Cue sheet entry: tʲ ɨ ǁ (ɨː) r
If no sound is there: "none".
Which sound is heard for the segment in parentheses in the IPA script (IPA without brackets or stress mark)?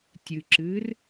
ɨː